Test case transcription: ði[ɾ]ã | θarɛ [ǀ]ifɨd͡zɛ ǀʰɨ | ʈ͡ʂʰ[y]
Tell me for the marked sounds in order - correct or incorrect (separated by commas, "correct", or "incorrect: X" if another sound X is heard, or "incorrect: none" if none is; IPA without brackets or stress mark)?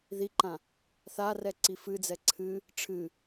incorrect: ǃ, correct, incorrect: ɨ